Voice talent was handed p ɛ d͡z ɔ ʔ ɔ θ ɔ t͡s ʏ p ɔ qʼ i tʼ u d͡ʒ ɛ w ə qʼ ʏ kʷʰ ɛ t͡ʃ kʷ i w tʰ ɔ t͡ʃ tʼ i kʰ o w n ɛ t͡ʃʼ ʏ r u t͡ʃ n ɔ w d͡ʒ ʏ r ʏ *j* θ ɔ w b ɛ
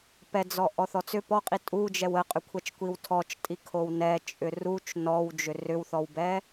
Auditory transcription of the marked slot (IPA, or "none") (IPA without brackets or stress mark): w